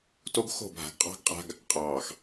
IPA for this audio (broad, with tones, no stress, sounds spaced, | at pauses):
t o˦ ɡ x o̤˦˨ bʱ a̤˨ ɡ qʼ ɑ̤˦ ɡ qʼ a̤˦ ɡ | qʼ ɑː˨ x